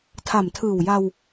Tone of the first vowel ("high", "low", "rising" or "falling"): low